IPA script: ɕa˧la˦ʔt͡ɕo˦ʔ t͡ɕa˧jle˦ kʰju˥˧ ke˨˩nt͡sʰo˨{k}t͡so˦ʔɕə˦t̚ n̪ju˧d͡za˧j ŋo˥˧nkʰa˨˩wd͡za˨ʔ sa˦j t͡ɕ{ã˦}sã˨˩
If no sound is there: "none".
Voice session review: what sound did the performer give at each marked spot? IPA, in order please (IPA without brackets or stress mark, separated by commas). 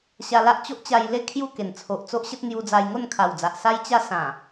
ʔ, a˦